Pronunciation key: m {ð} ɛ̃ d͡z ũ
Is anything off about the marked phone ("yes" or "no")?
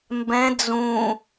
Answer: yes